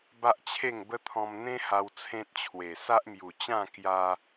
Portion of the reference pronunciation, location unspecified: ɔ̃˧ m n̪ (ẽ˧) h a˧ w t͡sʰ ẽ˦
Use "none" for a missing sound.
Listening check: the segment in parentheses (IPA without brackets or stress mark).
ẽ˦